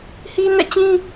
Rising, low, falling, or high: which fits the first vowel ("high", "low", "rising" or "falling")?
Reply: high